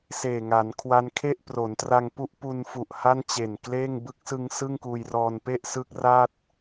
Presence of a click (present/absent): absent